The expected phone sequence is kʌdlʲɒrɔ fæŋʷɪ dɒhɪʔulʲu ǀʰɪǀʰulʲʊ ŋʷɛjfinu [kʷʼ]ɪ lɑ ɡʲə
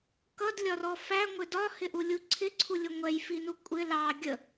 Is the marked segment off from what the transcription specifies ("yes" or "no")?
no